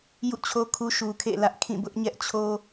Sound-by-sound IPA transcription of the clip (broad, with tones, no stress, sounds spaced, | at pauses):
j ṵ˦˨ t͡ɕʰ o˦ kʰ u˦ ʃ u˨ kʰ ḛ˦˨ l ä˦ ʔ kʰ ĩ˦˨ b ʊ˦ ʔ ɲ ɛ˦ ʔ t͡ɕʰ o˦